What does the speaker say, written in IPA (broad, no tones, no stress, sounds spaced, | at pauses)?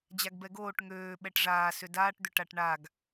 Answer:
d͡ʑ a ɡ b ɛ ɡ oː ʈ ŋ øː ɓ ɛ ʈ ʐ aː s ʏ d aː ʈ d̪ ʏ ʈ a ʈ ɳ a ɡ